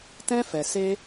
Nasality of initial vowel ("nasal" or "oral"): nasal